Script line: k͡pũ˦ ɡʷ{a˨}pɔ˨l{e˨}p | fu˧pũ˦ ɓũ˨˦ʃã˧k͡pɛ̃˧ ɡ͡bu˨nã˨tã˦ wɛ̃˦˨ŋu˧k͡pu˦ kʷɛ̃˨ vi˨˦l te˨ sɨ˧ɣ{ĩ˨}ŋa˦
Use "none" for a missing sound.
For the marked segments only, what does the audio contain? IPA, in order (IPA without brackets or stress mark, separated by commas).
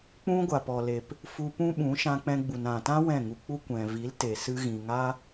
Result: a˨, e˨, ĩ˨